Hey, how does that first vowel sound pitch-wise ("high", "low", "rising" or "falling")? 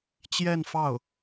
falling